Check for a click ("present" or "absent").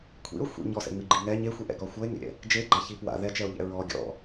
present